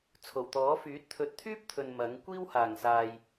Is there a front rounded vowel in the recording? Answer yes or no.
yes